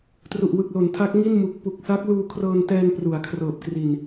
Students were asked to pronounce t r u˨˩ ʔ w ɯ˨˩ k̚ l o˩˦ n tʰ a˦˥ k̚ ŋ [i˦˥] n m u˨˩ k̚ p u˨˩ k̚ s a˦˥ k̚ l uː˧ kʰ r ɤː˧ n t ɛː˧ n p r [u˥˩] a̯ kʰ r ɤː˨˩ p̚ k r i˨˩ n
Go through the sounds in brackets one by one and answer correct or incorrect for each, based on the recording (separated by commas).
incorrect, incorrect